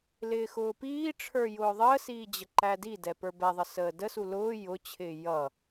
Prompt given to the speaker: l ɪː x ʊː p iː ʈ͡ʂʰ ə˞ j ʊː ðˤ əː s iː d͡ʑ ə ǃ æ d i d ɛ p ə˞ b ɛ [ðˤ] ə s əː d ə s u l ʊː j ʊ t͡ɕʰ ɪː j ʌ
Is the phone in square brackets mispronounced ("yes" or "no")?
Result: no